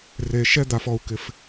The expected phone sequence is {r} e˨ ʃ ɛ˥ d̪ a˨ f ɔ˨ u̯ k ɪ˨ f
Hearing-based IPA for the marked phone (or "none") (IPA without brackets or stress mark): r